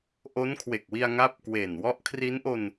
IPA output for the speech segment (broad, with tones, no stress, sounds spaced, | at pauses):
ʔ o˦˥ n kʰ w e˨˩ k̚ w i˧ a̯ ŋ a˦˥ p̚ k w e˨˩ n w ɔ˦˥ ʔ kʰ r i˦˥ n ʔ o˧ n